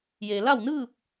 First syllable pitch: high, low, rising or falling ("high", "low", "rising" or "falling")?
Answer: low